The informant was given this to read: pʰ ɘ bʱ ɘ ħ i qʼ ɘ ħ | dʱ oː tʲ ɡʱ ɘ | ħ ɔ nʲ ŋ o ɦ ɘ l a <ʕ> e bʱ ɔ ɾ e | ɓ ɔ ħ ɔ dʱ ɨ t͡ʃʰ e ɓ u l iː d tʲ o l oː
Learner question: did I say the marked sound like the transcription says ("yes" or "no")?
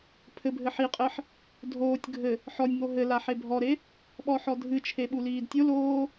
no